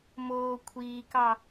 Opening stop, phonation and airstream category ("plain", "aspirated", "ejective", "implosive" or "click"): aspirated